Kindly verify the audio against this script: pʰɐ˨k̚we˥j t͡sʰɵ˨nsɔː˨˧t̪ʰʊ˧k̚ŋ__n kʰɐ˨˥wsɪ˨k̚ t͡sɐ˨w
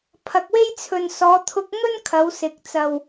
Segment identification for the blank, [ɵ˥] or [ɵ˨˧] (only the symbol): ɵ˥